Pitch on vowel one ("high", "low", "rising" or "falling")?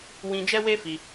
high